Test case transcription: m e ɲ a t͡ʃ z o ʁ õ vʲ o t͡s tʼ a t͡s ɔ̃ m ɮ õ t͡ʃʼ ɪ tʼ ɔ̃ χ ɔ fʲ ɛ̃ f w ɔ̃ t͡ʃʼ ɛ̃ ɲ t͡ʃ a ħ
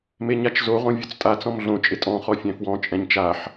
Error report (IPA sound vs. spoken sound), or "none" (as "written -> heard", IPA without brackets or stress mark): none